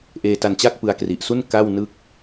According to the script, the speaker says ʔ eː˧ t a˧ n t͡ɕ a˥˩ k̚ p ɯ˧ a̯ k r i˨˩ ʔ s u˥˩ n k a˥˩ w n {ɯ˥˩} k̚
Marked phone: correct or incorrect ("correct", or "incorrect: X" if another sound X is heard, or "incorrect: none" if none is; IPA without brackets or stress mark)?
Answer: correct